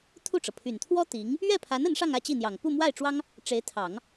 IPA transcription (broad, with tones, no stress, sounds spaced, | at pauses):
t̪ʰ u˥˩ ʈ͡ʂ ɤ˩ pʰ y˨˩ n t̪ʰ w ɔ˥ t̪ i˧˥ ŋ | ɥ ɛ˥˩ pʰ a˧˥ n ə˧˥ n ʂ ɑ˥˧ ŋ ä˥˧ t͡ɕ i˥˩ n̪ j ɑ˨˩ ŋ p u˥˧ m w a˥˩ ɪ̯ ʈ͡ʂ w ɑ˥ ŋ | ʈ͡ʂ e˧˥ ɪ̯ t̪ʰ ɑ˨˩˦ ŋ